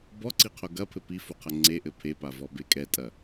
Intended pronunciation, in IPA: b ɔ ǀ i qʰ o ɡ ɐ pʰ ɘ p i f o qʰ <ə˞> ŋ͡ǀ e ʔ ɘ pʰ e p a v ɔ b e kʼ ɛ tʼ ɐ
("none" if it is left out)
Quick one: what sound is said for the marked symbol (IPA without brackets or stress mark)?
ɐ